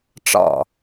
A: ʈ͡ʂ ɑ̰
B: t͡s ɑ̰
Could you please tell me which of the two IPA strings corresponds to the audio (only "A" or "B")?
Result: A